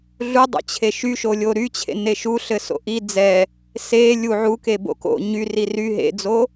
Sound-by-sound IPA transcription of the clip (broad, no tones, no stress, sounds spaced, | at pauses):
ɮ u dˤ o̰ t͡ɕʰ e ʃ y ʃ o lʲ o ɾ y t͡ɕʰ ḛ n e ʃ u ɬ ɘ s o̰ ʔ i d͡z ɛ | s e lʲ u ʕ u k e b o̰ k o̰ ɲ y r i r y ɦ ḛ d͡z o